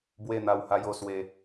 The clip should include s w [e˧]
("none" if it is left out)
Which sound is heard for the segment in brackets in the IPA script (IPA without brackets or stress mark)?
e˧